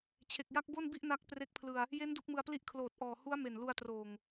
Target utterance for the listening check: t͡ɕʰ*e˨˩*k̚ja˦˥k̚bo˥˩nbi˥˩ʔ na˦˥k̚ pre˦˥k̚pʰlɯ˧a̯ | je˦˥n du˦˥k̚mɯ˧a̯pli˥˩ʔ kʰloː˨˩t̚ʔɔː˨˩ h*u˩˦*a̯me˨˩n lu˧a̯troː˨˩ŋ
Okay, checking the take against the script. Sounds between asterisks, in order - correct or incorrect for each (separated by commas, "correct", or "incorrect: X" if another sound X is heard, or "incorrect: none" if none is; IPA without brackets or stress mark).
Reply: correct, incorrect: u˦˥